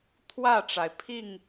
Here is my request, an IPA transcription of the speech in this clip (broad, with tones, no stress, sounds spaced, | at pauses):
t̪ʰ w ä˥˨ ʈ͡ʂ a˩ ɪ̯ pʰ i˥˨ ŋ